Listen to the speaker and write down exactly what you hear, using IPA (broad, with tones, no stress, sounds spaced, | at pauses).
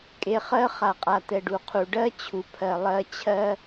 kʼ e˨ χ ɜ˦ χ a˨ qʼ a˨ t̪ ɛ˨ ɖ u˨ qʰ u˨ ɖ ɜ˦ t͡ɕʰ u˨ pʰ ɜ˨ lˠ ɜ˦ t͡ɕʰ ɜ˦